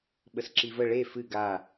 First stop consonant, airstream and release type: implosive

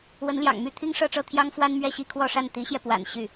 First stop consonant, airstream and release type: aspirated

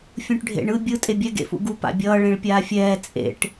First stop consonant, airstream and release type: plain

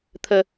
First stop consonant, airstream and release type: aspirated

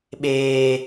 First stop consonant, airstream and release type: implosive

